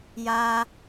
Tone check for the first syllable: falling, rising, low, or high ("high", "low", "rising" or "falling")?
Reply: high